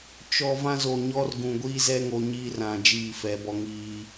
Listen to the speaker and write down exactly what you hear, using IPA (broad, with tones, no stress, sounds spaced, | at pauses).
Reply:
t͡ʃ ɔ˨ v ã˦ z o˨ ɲ ɔ˦ r ɡ ũ˨ ɡʷ iː˦ z ɛ˦ ŋ o˨ ɲ iː˦ r ã˨ d͡ʒ iː˦˨ f ɛ˨˦ b ɔ˦ ŋ iː˦